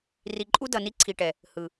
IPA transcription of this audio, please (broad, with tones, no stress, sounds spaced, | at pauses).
r i˨ ǃʼ u˦ d ʌ˨ n i˦ ǀʰ i˨ ʈ ɛ˨ | h ɯ˨